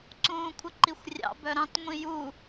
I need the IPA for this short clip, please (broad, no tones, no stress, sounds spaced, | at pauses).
ǀ ũː kʷʰ ə ǃ i xʷ rʲ ɑ̰ b œ ɾ ɑ̃ t ŋʷ ĩ j u